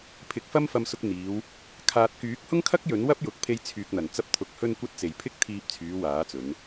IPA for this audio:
pʰ ɪ˨˥ k̚ f ɐ˥ m f ɐ˧ m s ʊ˧ k̚ n̪ iː˨˧ w | kʰ aː˨ t̚ k yː˨˥ k̚ h ʊ˥ ŋ kʰ ɐ˥ k̚ j ɵ˨˥ n w ɐ˥ p̚ j ʊ˨ k̚ pʰ e˧ j t͡sʰ yː˨ k̚ n̪ ɐ˨˩ n t͡s ɐ˧ p̚ t̪ʰ ʊ˨ k̚ h ɵ˧ n kʷ ɐ˧ t̚ t͡s e˨˩ j pʰ ɪ˥ k̚ t̪ʰ iː˧ p̚ t͡sʰ yː˨˧ w aː˨˥ t͡s ɵ˨˧ n

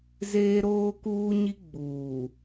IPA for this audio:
z eː˦ ɾ oː˦ k uː˦ ɲ i˦ ɡ͡b uː˨

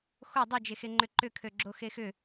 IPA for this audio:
x o dˤ o d͡ʒ e x e ŋ͡ǃ ʏ ǃ ʏ kʰ ø ɡ͡ǁ o x e x ʏ

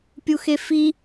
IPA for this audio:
pʲ u x e f i

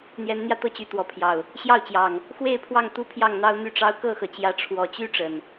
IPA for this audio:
n̪ j ɛ˨˦ n n̪ j ä˧ t̪ ɤ˦ t͡ɕ y˨˦ t̪ w ɔ˨˦ pʰ j ɑ˨˩ ʊ̯ | ɕ j ɑ˥˨ ʊ̯ t͡ɕ j ɑ˨˩ ŋ | x w e˥˨ ɪ̯ pʰ w ɑ˥˨ ŋ t̪ u˦ pʰ j ɑ˥˨ ŋ n̪ ɑ˦ ʊ̯ n̪ y˥˨ ʈ͡ʂ ɑ˦ ʊ̯ k ɤ˥˨ x ɤ˩ t͡ɕ j ä˨˦ ʈ͡ʂʰ w ɔ˨˩ t͡ɕ y˦ ʈ͡ʂ ə˨˩ n

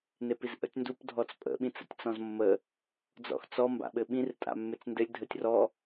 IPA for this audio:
n e p i z ʔ ə̰ tʲ n d u p dʱ ɔ t͡s pʼ ə̰ ɓ ĩ t͡s ə̰ tʲ t͡s ɔ̃ z mː ə | d͡z ɔ̰ x t͡s ɔ m b a̰ ɓ ɘ ɓ ĩ r tʼ a̰ mː e t͡s n d ɘ lʲ dʱ ə tʲ r ɔ

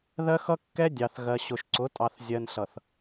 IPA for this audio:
ð ɜ˦ x ʌ˦ kː ɛ˦ dʲ ɑ˨ θ ɣ ɜ˨ ɕ ʊ˨ ʃ ǀ ʊ˨˦ tʼ ɑ˨ θ zʲ ɜ˨ n ɬ ʌ˨ θ

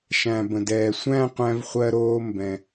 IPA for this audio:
ʃ æ̃˩ b ə̃˩ d ɛː˩ sʷ æ̃˥˧ qʷ æ̃˧ v χʷ ɜ˧ ɾ oː˧ m b ɛ̃˩

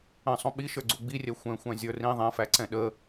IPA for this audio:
ə̃ sˤ ũ ɓ i ʃ ə˞ ɡ͡ǀ u ɡ͡b i rʲ ɛ xʷ ɛ̃ xʷ æ̃ zʲ ə˞ r ĩ ðˤ ɛ̃ f æ ǀ ɛ̃ ɗ ə

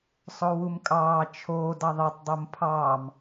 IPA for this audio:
sˤ o w u m kʼ ɑː t͡ʃʰ oː d ɑ ðˤ e tˤ dˤ u m pʰ ɑː m

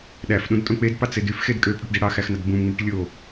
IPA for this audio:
ɗ æ f ɗ ũ d tʼ õ k͡p e d p ɑ t͡s e d y f x e d kʼ ø pʼ y ʈ d i ɽ ɑ x æ x n ɑ d b ũ m ŋ͡m u ʈ lʲ o

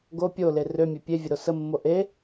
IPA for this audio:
ɡ o pʲ o l e r ø mʲ e pʲ e vʲ ə ɾ o s ə mː o ʔ e

